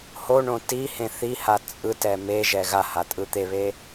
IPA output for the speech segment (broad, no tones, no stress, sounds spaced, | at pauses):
h o ɳ õ t i h ẽ θ i h a t͡sʼ ɯ t ɛ m e ʒ ɛ ɣ a h a tʼ ɯ t̪ e β e